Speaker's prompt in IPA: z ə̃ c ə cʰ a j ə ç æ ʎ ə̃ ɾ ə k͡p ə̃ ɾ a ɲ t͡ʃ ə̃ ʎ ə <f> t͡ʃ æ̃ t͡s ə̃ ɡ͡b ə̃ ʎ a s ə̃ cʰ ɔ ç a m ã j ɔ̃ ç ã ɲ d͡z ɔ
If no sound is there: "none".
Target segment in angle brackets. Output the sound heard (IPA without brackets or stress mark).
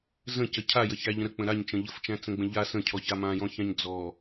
f